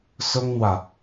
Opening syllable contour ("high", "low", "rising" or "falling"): high